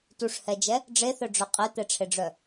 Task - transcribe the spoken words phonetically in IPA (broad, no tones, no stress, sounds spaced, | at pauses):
t u ʂ h ɛ d͡ʒ ɛ | ɖ͡ʐ e θ œ ɖ͡ʐ œ qʼ e t̪ ɛ ʈ͡ʂʰ e ɖ͡ʐ œ